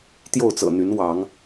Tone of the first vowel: falling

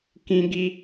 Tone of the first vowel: high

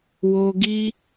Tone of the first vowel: low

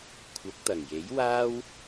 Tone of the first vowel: rising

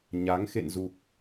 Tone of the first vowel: rising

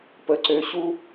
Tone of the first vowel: low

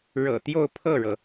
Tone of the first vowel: low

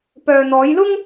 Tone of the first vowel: low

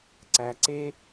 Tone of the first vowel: low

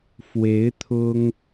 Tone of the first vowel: rising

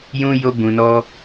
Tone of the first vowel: high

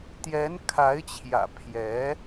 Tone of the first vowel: rising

